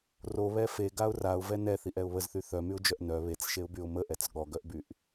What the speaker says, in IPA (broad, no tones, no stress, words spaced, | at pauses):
roβɛ feɡaʊ̯ raʊ̯vɛ nɛθiʔɛʊ̯ βəzθy θœmyʊ̯d͡ʒœʔ nœ βet͡sʃeʊ̯byʊ̯ məʔɛt͡s ɠɔɡœʔbyʔ